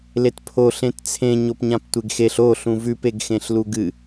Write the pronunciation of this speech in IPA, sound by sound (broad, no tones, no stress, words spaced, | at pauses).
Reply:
letpʰo ɬẽtt͡sʰẽ ɲopɲãptʷeɡxeɬ o ɬũvʉp eɡxẽɬluɡɨ